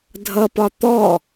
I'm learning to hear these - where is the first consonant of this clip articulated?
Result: tongue tip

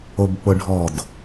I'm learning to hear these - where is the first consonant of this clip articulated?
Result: lips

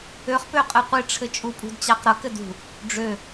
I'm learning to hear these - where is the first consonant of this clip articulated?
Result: uvula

